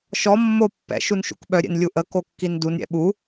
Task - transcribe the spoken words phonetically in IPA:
ʃɔ mːo pːɛ̰ ʃunʃṵkɓœ ɾʲɛ̰nlʲuʔə kokːindun ɾʲɛ̰ɓu

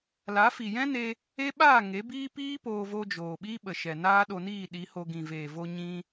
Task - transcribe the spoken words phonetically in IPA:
la˨˦fi˨jɛ̃˦ne˧ | e˦ɓaː˦˨ ŋe˨˦biː˦ piː˦poː˧vo˧ d͡ʒoː˨ɓiː˦ɓə˨ ʃɛ˨naː˦ɗo˧ niː˦˨ɗi˨˦ho˧ ɡĩ˨veː˨vo˧ ɲĩ˧

